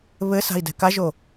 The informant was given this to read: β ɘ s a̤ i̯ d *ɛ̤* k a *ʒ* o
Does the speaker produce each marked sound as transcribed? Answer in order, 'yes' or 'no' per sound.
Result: yes, yes

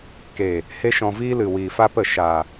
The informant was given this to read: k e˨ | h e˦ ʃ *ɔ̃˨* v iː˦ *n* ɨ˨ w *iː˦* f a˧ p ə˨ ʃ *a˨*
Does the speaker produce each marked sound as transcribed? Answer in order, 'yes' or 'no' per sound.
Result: no, no, no, yes

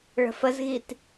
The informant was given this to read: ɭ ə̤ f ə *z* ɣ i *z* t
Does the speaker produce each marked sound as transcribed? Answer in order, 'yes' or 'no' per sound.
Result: yes, no

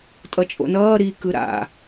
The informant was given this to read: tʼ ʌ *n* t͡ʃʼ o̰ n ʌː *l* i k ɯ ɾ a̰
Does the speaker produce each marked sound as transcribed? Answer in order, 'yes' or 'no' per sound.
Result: no, no

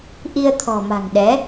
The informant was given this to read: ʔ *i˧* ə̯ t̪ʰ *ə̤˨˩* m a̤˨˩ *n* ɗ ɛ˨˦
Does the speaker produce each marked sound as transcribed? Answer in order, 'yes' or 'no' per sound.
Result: yes, no, no

